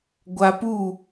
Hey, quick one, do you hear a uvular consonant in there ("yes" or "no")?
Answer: no